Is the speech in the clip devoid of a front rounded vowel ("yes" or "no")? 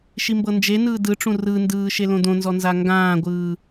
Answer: yes